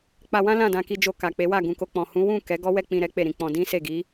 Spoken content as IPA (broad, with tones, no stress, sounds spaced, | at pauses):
k͡p a˧ w ã˦ l ã˦˨ d ã˧ k i˧ d͡ʒ o˧ k a˨ k͡p e˨˦ w a˦˨ ɡ ũ˨ k o˧ k͡p ɔ̃˨ h ũ˨˦ w ũ˦˨ k ɛ˨˦ ɡ ɔ˦ w ɛ˦˨ k͡p ĩ˧ ɾ ɛ˦ k͡p e˦˨ ɾ ĩ˨˦ k͡p ɔ̃˧ d ĩ˦ s e˦˨ ɡ i˨˦